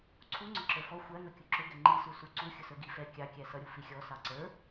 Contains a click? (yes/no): yes